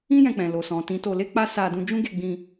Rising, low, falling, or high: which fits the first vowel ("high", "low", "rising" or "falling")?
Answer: high